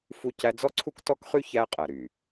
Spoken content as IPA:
f u˦ c æ˦ d͡z ɔ˦ ǀʰ u˦ k t ɔ˦ k χ y˦ ç æ˦ qʼ æ˨ ɾ y˨

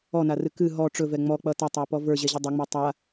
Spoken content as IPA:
ɔ n a r ɨ k ɨ ɦ ɔ ʈ͡ʂ ɵ v ɛ ŋ͡m ɔ k͡p ʌ t ʌ tˤ ə˞ p ɔ v ə˞ ʑ ɛ ʑ ʌ dˤ ɵ ŋ͡m ɛ tˤ a

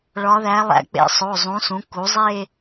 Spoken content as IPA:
ɭ ɒ˧˥ ð æ˧˥ lˠ æ̰˧˥ k͡p ḛ˧˥ sˤ o˩˧˩ zˤ ũ˩˥ s ũ˩˥ k u˩˥ zˤ e˥˧

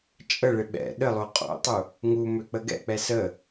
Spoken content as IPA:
t͡ʃʼ ə ɭ ɪ ɓ ɛ̰ ɗ ə lˠ o qʼ o̰ tˤ u | ŋ u m ø k͡p ə ɡ ɛ̰ k͡p ɛ s ə

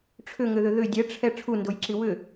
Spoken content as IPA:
ʈ͡ʂʰ ʏ ŋ ʏ ð ʏ ð ʏ dʲ ɛ ʈ͡ʂʰ ɛ ʈ͡ʂʰ u n d o j ǁ i w ʏ

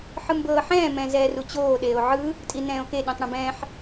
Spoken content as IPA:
ħ ɯ m b ɤː ħ ɛ̃ː m ɛ̃ z ɛː r u t͡ɕ oː ɗ eː o̯ ʕ ɯ | tʼ i n ɛ̃ː o̯ k e ɗ ĩ tˤ ɽ ĩ b ɛ̃ː ħ

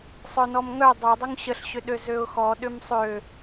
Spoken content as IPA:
sˤ œ n ɔ m ŋ œ dˤ œ dˤ ʏ ŋ ɕ ə ɬ ɕ ʏ ɗ ø z ø ʊ̯ x ɔ ɗ ʏ m sˤ ø

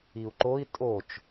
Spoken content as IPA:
i u̯ ǃ o i̯ tʼ o t͡ʃ

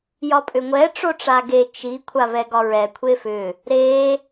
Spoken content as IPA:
j ɒ pʼ ʏ ŋʷ ɛ ʈ͡ʂ o ʈ͡ʂ a ɡ e t͡ʃ i kʷʰ a v ɛ ɡ ɒ ɹ ɛ kʷʰ e f ʏ | ɾ e

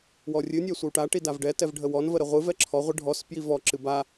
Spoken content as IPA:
w ɔ rʲ ɨ nʲ ɛ sʷ ə w ʈ a ʈ i d a v ɖ ɛ t ɛ v ɖʱ ə w ɔ n v ə ɾ ə ʁʷ ɨ v ɛ ǁʰ ɔ ʁʷ ɨ ɖʱ ɔ s p j i v ɔ ǁ ɨ b a

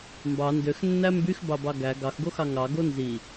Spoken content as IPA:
m b ɑ n d ø x nː æ m b y x b ɑ b ɑ ɡ æ ɡ ɑ x ɡ o x ɑ ŋ ɑ ɡ o n z i

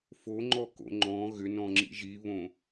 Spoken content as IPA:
f o ŋ͡ǃ ɔ k o̰ ŋ͡ǃ ɔ̃ ɣ ʏ n ɔ̃ ŋ͡ǁ ḭ ʒ i β õ

